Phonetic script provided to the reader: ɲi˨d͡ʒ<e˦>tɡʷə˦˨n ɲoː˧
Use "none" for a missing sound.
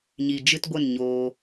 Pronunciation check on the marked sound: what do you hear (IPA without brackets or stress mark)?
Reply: ɨ˦